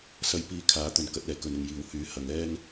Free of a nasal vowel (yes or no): yes